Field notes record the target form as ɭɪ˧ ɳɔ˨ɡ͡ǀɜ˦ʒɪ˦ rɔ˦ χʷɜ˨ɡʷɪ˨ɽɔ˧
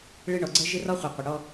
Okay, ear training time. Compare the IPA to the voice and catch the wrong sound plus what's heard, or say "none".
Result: ɡʷ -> qʷ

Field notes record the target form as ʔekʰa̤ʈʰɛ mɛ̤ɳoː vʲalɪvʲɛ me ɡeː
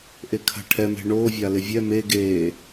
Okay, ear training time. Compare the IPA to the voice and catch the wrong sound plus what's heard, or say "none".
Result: none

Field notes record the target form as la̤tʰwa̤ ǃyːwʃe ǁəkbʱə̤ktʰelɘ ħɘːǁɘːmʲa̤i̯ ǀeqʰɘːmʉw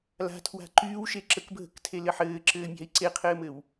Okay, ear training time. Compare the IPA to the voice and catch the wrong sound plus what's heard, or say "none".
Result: ʉ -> ɘ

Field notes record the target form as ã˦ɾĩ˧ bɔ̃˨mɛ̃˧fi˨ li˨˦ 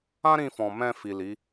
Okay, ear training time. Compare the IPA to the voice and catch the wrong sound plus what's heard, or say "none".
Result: b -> f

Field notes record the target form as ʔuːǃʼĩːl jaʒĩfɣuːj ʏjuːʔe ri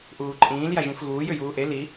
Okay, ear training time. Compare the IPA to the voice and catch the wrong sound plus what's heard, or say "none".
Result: r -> l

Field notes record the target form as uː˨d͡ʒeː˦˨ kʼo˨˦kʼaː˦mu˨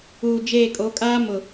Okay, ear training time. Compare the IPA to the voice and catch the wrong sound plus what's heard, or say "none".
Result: u˨ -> ʊ˨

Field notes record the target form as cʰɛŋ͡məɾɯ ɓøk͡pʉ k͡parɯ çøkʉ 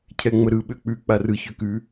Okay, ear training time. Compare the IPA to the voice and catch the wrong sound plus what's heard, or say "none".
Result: none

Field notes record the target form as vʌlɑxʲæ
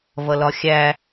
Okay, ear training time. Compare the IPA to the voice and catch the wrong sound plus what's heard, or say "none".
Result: ɑ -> ɒ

